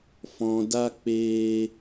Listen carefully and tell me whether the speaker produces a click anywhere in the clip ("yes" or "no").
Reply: no